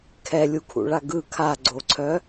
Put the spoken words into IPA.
kʰɛlʲukʰṵɭa ɡɯ kʰaɡ͡ǀoǀʰœ

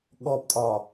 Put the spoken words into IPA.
ɠɔptʼɒ

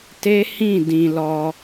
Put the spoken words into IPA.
te˦ hĩ˦˨dĩ˨ lɔ˧

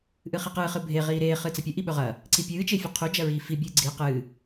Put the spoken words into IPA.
ʔɨχiqɨː χɨbʱe ʁiːɾeː χɨt͡sɐpʲɵ ʔiɓɵʁɐː | ǀipʲɨː t͡ʃefʲɐqʰu d͡ʒɐɹiːfi bʲɨːɡ͡ǀi qɨː

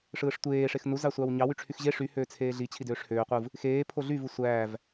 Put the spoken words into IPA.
ʂɯːʂtʷeː ʂexnu zɑsʷɑwɲɑ wyʈ͡ʂʰyxʑe ʂy høːt͡sʰeːɮi t͡ɕʰidøːʂhøː qʷɯv | xeː pʰoɮy vɯsʷæːv

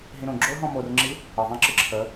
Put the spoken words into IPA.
ɦĩɾõ ɡ͡ǁoɦɔ̃ morŋ͡ǁi | əðˤẽ ǁɨǁʰə

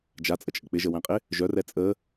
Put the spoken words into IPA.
d͡ʒat͡sʼət͡ʃʼə k͡pɪʒəwæ̃qʼɪ | ʒœrɛ t͡sʼə

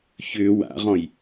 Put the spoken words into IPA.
çʏ wa̰ʁɔ̃j

